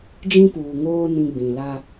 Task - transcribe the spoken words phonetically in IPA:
d͡ʒ ĩ˦ p uː˨ ŋ oː˦ n ĩ˦ ɡ͡b ĩ˨ l a˦

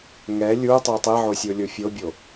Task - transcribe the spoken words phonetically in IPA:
ŋ ɛ lʲ u tˤ e tˤ e ʕ o sʲ o lʲ o fʲ o bʲ o

